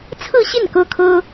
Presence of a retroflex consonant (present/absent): absent